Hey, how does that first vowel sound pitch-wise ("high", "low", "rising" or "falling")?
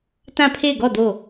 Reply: falling